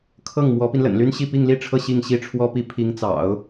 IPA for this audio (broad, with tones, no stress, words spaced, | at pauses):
kʰɤ˥˩ŋ mwɔ˧˥pi˧nlə̰˨˩nly˥n ɕi˥˧pi˥˧ŋli˥˧ʈ͡ʂʰɤ˥˧ ɕi˥˩ŋɕi˥ʈ͡ʂʰwɔ˥pi˥˩ pʰi˧˥ŋt͡sɑ̰˨˩˦ʊ̯